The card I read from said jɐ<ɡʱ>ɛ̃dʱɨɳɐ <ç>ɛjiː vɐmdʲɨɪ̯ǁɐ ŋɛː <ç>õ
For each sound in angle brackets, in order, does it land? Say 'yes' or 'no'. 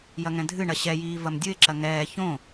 no, no, yes

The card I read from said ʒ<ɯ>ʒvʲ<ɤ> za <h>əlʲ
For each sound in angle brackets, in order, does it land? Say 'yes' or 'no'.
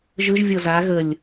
yes, yes, no

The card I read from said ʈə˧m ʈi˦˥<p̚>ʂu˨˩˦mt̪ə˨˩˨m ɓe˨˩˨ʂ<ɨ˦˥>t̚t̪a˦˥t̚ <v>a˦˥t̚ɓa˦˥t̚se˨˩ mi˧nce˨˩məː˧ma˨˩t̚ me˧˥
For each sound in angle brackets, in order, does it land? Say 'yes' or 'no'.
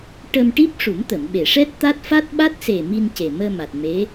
yes, no, no

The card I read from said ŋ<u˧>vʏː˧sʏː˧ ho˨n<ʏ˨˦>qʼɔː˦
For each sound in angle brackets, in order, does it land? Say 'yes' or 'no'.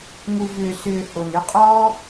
yes, yes

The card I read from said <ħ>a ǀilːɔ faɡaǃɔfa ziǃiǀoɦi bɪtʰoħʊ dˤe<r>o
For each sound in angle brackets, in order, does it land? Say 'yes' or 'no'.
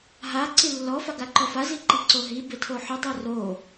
no, yes

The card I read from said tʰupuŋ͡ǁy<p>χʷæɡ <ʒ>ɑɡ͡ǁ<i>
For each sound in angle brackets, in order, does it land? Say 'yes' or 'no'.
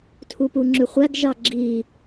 no, yes, yes

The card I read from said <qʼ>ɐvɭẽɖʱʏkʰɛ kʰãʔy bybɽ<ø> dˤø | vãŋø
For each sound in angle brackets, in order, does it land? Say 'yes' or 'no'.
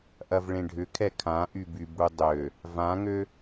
no, no

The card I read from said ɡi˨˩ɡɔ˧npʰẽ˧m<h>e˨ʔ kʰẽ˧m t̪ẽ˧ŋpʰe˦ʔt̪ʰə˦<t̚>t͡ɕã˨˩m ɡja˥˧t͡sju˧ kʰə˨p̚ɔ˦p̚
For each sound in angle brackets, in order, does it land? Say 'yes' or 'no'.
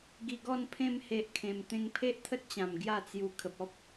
yes, yes

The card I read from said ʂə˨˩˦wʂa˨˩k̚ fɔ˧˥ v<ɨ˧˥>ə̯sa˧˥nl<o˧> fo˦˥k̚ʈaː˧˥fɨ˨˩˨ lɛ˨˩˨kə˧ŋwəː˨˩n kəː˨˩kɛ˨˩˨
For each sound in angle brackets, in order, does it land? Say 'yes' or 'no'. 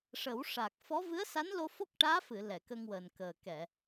yes, yes

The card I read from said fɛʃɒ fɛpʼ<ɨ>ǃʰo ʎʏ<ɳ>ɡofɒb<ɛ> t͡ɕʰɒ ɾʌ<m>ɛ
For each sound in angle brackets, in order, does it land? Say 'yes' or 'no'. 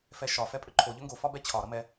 no, no, yes, yes

